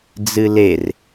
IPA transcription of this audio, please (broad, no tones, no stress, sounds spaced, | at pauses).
d͡z ɨ l e r